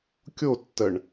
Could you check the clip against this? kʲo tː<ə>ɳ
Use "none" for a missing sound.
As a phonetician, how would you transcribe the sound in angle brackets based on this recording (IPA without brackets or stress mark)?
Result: ə